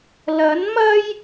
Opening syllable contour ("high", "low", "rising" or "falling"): rising